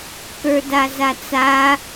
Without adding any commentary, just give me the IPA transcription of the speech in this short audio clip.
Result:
k ə˞ d a z a t͡s a

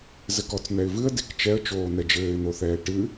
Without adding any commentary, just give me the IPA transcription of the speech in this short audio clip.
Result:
z ɘ k ɔ t͡s n̪ ɛ ɪ̯ v ɨ ə̯ d e k t͡ʃ ɛ ə̯ t͡ʃ oː n̪ ɛ d͡ʒ ɘː ɪ̯ n̪ o θ ɛː ʈ ɨ

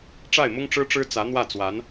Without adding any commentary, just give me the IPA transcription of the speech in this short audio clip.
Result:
ʈ͡ʂ a˥˩ ɪ̯ m ʊ˥ ŋ ʈ͡ʂ ɻ̩˥ ʈ͡ʂ ɻ̩˥ t͡s ä˧˥ n̪ w ä˥˩ t͡s w a˧˥ n

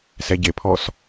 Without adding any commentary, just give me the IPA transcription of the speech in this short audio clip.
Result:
s ɛ ɟ e pʰ ɔ s

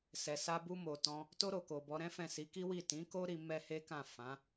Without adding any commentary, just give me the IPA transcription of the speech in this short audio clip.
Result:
s ɛ˨ s a˧ b u˧ m o˨ t ɔ̃˧ | t o˧ ɾ o˨ k o˨ b ɔ˨˦ ɾ ɛ̃˦ f ɛ̃˦˨ s i˨˦ k i˦ w i˦˨ t ĩ˨˦ k o˦ ɾ i˧ m ɛ˦ h e˦ k ã˦˨ f ã˨˦

